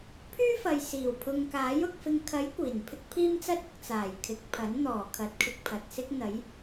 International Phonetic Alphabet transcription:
pʰ yː˥ f ɐ˨ j s iː˨˩ w pʰ ʊ˨ ŋ k aː˨˥ j ʊ˨ k̚ f ɪ˨ ŋ kʰ ɐ˨˥ j kʷ iː˨˩ n pʰ ɪ˥ k̚ pʰ iː˥ m t͡s ɐ˥ t̚ ʊ˨ k̚ t͡s aː˨˩ j kʰ ɪ˨ k̚ pʰ ɐ˨˥ n n̪ ɔː˨˩ kʰ ɐ˨˥ t̚ kʰ ɪ˧ k̚ pʰ ɐ˨ t̚ s ɪ˥ k̚ n̪ ɐ˨˥ j

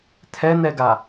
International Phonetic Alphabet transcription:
tʰ ɛ n̪ ɛ ɡ a

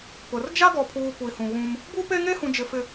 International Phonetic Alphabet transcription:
p ʊ˨ r d͡ʒ a˦ ɡ ɔ˨ pʰ uː˨ kʷ i˨ h ũ˨ ɣ ũ˦ m | b u˦ p e˦ ŋ e˦ h ũ˨ d͡ʒ ɪ˨ f ɪ˨

